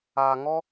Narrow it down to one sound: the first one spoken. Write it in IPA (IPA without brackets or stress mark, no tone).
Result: aː